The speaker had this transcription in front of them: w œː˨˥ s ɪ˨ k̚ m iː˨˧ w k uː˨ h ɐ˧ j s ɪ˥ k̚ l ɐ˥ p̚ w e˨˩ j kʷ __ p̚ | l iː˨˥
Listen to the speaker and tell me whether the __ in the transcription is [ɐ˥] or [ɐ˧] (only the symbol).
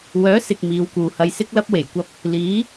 ɐ˧